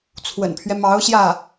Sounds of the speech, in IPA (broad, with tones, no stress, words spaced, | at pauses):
t͡sʰwə̰˨˩npʰɥɛ˦mɑ˧˥ʊ̯ ɕjä˥˩